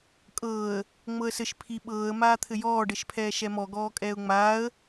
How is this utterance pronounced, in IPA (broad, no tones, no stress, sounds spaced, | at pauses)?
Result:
kʼ ɤː ə̯ | ŋ͡m ɤ ə̯ s ɘ ʃ pʰ i ɓ ɤː ə̯ m aː t̪ʰ ɘ j ɔː ɖ ɘ ʃ pʰ ɛː ʃ ɛ m ɔ ɡ ɔː kʼ ɛː ʊ̯ ŋ͡m aː ə̯